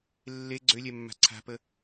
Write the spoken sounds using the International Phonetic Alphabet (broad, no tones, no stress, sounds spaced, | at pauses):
lː e ɡ͡ǀ ø lʲ ɛ mː a̤ ǀʰ a̤ p ə